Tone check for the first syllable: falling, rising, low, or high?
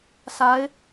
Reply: rising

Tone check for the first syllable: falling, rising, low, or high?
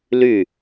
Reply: falling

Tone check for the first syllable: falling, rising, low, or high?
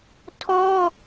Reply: high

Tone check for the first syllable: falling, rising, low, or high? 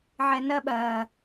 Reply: low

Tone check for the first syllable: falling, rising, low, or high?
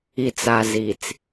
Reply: low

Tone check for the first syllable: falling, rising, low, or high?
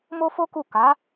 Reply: high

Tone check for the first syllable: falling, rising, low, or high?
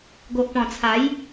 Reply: low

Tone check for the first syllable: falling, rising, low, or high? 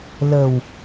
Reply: low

